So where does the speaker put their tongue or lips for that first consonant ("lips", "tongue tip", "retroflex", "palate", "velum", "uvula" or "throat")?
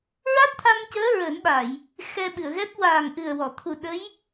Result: tongue tip